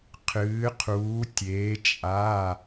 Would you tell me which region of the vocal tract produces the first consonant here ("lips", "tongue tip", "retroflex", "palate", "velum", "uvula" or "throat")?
uvula